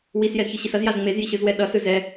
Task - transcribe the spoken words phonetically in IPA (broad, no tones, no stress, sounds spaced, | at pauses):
w i s j ɛ z ç ɯ ɕ i s ʌ z j a z ŋ͡m e z j i ɕ ɯ z w ɛ ɗ ʌ s ɯ z ɛ